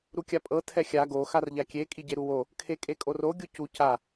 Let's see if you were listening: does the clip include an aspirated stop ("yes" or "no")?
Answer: yes